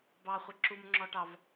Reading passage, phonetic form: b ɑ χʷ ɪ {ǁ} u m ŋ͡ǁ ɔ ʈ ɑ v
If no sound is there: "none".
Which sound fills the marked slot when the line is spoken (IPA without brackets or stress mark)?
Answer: ǁ